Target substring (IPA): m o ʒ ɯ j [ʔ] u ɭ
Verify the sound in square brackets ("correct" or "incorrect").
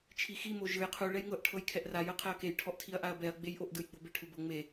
incorrect